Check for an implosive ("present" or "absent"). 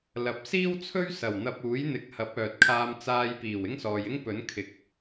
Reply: absent